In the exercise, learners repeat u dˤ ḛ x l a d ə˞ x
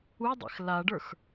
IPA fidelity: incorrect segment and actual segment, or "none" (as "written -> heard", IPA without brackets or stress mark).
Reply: d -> ɖ